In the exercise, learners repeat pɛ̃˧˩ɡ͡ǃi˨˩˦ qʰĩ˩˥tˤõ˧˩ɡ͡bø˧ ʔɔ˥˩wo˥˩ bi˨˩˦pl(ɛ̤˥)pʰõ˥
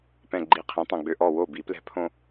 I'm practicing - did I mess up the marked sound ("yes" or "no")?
no